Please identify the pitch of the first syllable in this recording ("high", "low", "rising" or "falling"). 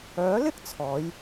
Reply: rising